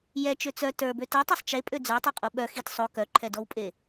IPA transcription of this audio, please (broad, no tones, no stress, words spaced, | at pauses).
jɛt͡ʃø t͡sœ tə˞bø tɛtˤɛsˤ t͡ʃepʼø d͡zə˞tˤə˞qʼo ɓœ xit sˤo kœǃʰɛdɔwpʼe